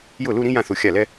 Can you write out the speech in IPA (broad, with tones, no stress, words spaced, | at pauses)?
jʊ˥˩lu˥˧ɾĩ˥ jã˥˩θ u˥˩xʲa˥˩lɛ˥